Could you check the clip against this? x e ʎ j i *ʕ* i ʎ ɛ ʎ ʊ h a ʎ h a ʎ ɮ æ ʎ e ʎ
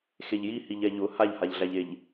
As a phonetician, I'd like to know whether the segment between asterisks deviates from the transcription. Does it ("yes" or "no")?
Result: yes